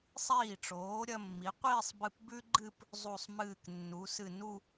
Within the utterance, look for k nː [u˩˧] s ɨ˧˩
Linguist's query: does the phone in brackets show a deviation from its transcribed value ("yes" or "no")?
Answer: no